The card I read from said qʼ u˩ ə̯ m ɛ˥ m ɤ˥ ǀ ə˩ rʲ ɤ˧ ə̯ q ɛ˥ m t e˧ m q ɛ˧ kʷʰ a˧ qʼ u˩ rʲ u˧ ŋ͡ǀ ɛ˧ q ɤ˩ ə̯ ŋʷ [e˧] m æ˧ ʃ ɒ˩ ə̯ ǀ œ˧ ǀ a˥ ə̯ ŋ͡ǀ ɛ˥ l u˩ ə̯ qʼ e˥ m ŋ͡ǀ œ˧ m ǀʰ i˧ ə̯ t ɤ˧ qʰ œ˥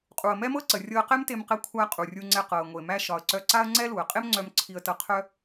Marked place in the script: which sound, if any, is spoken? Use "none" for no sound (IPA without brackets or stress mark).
e˩